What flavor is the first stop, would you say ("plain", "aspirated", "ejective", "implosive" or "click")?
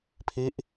aspirated